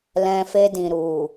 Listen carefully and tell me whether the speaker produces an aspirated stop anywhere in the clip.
no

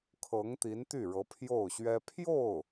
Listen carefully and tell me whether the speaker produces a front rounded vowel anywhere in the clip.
yes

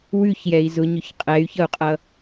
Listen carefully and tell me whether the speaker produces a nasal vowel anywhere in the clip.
no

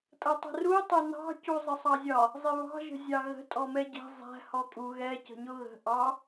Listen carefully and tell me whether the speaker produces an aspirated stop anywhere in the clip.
no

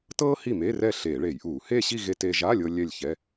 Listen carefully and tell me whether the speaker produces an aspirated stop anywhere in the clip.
no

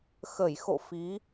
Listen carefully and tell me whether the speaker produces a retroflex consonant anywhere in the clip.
no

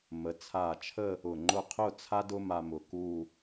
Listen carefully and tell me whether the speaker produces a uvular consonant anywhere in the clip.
yes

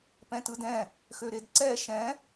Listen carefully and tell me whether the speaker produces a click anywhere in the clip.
yes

